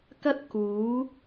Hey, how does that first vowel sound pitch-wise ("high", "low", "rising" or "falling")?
high